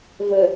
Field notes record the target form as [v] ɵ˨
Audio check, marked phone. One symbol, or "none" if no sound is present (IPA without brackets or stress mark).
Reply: v